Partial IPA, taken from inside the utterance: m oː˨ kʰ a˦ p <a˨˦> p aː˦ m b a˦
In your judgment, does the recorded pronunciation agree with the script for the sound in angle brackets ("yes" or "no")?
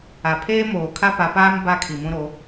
yes